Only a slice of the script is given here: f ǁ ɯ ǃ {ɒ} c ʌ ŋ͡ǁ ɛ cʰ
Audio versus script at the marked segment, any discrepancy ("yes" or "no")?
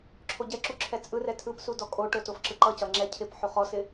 yes